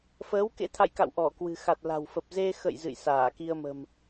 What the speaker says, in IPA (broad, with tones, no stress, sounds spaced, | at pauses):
f əː˨˦ w k ḛ˧˥ t̪ʰ a̰˧˨ j k a̰˧˨ w ʔ ɔ˧˩ k w ɨ̤˨˩ x a˨˩ t̚ l a̤˨˩ w f ə˨˩ p̚ z e˧ x ə̰˧˨ j z ɨ̰˧˨ j s aː˧˩ k i˧ ə̯ m ə̤˨˩ m